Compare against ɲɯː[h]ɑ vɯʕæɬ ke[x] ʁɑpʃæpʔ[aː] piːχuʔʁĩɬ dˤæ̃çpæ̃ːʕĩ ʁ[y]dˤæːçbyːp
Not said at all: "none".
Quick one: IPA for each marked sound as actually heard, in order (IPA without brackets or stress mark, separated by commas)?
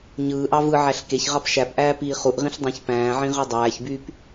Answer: ʔ, ç, æː, y